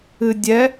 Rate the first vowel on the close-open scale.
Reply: close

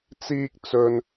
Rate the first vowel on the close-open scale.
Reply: close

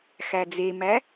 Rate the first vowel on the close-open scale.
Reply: open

